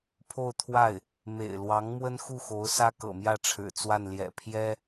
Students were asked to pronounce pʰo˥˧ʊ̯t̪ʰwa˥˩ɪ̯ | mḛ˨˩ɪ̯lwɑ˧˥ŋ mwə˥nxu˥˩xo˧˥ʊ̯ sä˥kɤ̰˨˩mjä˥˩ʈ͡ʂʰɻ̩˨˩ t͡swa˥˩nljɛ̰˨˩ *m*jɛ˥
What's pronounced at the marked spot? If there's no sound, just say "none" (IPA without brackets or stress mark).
pʰ